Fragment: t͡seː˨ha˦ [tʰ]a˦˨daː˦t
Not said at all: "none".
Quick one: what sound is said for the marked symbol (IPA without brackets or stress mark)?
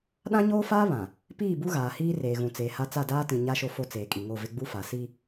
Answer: t͡s